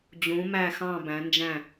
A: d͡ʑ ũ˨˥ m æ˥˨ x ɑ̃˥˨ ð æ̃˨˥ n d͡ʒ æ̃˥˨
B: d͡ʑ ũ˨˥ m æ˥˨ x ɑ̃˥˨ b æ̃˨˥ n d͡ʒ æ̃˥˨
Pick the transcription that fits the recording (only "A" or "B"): B